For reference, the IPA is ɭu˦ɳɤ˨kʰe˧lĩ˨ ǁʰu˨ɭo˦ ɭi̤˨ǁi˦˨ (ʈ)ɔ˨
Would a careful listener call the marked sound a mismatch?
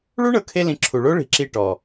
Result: no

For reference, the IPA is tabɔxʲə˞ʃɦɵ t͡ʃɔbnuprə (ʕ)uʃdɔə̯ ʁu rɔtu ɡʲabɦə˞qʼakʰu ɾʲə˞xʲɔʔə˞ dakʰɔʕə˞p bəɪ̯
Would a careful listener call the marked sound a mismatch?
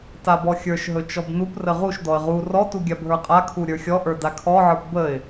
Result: yes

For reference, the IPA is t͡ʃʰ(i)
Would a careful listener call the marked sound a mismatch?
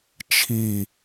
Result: no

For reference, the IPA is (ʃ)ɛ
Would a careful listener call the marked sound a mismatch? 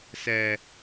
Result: yes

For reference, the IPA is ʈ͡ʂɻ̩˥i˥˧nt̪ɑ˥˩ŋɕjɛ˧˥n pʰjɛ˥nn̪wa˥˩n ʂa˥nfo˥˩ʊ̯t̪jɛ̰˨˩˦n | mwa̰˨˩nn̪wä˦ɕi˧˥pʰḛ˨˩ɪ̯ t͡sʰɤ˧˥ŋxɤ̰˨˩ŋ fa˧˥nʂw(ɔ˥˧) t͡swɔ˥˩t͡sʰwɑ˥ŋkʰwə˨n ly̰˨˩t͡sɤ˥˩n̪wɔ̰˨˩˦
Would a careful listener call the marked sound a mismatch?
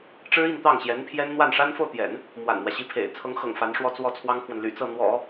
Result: no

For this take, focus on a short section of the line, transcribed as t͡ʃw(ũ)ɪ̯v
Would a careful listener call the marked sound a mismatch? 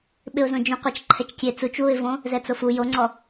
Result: yes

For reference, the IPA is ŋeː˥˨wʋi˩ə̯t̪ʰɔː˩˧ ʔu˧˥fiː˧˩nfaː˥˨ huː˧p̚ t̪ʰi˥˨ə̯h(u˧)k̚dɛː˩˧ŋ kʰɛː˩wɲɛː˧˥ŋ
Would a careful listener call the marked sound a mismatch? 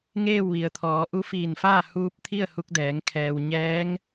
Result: no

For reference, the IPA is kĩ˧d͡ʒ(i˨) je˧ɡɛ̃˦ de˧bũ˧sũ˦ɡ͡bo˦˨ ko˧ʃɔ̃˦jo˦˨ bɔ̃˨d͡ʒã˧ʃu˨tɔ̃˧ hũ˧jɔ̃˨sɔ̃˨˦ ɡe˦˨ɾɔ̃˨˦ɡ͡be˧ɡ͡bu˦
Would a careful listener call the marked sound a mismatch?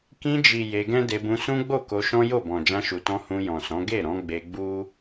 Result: no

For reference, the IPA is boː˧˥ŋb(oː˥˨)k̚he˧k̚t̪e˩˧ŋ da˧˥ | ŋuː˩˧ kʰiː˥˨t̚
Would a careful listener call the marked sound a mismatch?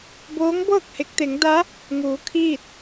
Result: yes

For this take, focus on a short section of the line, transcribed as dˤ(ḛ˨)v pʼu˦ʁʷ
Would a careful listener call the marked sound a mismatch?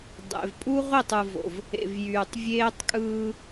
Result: no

